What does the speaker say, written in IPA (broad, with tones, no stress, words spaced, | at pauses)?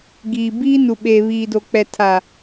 ɡiː˨biː˦ nu˨ɓeː˨βiː˨do˨ k͡pɛ˨tʰa˨